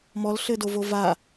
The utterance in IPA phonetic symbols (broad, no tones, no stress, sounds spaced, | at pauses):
m ɔ l ɬ ɘ d o v o v a